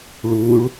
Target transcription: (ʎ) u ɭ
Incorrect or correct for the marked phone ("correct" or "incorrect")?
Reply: incorrect